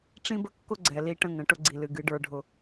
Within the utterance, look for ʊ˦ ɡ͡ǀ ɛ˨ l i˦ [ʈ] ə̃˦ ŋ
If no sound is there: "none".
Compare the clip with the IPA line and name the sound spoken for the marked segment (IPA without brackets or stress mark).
ʈ